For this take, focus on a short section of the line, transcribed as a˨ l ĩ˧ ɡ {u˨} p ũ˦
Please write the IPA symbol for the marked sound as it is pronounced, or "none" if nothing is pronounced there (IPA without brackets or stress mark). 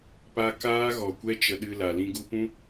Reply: u˧